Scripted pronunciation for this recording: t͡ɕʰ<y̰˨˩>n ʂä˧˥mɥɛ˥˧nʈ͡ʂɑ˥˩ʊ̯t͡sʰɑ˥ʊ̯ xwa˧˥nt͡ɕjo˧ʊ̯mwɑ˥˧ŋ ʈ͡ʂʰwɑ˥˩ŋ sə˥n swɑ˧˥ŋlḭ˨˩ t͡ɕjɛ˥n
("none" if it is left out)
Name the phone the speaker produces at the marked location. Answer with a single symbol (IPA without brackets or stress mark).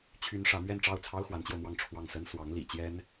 y˥